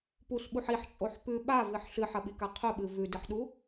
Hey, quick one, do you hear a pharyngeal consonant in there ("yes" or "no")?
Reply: yes